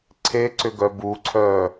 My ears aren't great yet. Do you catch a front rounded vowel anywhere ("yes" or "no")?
yes